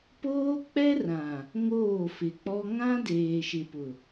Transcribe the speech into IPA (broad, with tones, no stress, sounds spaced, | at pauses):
p oː˦ k͡p ɛ˦ r ã˨ | ŋ oː˦˨ f ɪ˨ k͡p ɔ˦ ŋ ã˦ d eː˨ ʃ ɪ˨ p ʊ˨